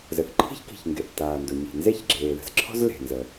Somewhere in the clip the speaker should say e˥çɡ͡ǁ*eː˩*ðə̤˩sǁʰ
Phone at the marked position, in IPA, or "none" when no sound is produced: eː˩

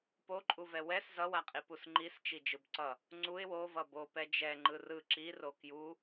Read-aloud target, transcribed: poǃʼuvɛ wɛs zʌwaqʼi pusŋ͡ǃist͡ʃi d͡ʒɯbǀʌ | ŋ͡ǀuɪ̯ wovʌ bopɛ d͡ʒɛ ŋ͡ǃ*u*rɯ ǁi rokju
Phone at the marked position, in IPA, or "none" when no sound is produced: ɯ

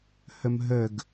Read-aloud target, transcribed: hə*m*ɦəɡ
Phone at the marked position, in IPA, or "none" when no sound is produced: m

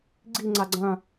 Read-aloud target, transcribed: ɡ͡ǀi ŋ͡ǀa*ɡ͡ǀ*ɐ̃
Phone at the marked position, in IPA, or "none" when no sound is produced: ɡ͡ǀ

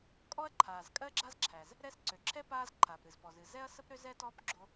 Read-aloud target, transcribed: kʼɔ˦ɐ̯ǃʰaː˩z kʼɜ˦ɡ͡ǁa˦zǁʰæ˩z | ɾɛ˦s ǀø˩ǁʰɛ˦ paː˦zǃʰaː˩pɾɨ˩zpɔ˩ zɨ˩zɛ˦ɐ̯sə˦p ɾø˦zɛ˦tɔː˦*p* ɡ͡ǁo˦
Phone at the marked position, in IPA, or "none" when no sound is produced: p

